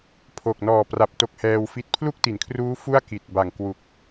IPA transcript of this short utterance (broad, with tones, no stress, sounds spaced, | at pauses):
pʰ o˨˩ k̚ n ɔː˨˩ p r a˨˩ p̚ t o˦˥ k̚ h ɛː˧ w f i˦˥ t̚ pʰ l u˥˩ k̚ t i˩˦ n kʰ r uː˦˥ f u˥˩ a̯ k i˨˩ t̚ b a˨˩ ŋ k w u˨˩ k̚